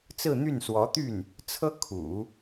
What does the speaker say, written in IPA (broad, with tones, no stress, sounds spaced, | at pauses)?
t͡s ɹ̩˥˧ n̪ y˥˩ n s w ɔ˧˥ t̪ y˥˩ n | t͡sʰ ɤ˥ kʰ ṵ˨˩˦